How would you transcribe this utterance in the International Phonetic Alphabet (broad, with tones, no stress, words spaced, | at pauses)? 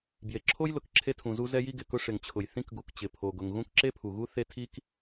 bje˩ǁʰo˥jlʊ˩k ǁʰe˥tʰũ˩zu˥ zɛ˥ji˥ɡɪ˩kʊ˥ ʂɪ˩ŋt͡ɕʰʊ˩j θĩ˥kɡu˩kt͡ɕɪ˩ pʰo˩ɡʊ˩ŋ ɣũ˥kǁe˥pʰu˩ɣu˥ θe˥ tʰi˥k